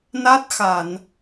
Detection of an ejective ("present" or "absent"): absent